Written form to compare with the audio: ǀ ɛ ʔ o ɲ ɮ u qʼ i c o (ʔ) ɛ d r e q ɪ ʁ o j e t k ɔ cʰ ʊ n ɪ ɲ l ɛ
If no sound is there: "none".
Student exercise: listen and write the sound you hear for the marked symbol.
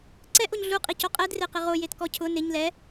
qʼ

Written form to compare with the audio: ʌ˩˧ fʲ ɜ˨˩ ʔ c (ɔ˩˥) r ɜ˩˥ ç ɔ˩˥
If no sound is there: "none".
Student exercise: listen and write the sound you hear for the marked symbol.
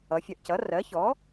ʌ˩˥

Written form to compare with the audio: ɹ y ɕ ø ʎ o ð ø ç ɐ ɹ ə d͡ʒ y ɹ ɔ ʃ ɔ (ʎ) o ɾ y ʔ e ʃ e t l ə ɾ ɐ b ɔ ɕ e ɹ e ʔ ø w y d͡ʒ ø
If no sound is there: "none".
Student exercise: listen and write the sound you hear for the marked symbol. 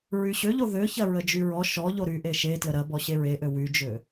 ʎ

